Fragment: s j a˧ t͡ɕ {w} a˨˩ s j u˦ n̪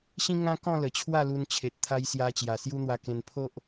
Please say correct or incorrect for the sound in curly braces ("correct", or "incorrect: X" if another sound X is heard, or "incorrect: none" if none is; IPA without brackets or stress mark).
incorrect: j